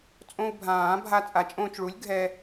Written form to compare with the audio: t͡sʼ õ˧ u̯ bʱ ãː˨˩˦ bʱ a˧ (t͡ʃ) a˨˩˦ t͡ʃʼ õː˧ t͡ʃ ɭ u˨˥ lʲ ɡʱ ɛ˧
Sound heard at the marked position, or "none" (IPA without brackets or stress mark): t͡sʼ